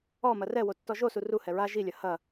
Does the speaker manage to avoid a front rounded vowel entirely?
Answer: yes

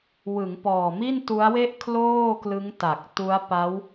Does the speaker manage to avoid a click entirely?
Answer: yes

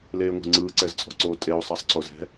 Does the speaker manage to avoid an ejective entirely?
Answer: no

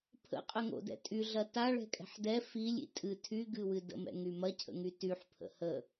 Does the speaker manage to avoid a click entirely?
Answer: yes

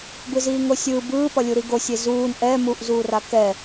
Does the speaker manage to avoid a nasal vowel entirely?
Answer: yes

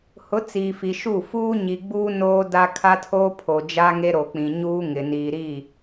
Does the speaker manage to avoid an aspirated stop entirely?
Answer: no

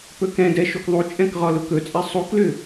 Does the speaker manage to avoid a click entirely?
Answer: yes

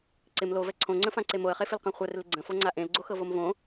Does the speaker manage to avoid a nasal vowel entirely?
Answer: no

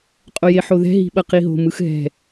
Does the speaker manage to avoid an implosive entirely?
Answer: no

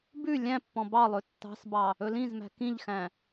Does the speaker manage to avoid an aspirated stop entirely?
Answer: yes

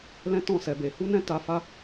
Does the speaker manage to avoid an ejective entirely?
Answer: yes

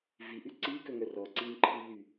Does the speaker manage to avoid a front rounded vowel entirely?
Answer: no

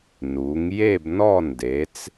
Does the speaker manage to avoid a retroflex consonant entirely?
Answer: yes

